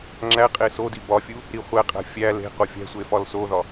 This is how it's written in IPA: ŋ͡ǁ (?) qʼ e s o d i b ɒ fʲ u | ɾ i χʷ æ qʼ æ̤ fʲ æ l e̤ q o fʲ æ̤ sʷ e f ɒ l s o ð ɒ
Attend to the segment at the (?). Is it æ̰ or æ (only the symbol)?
æ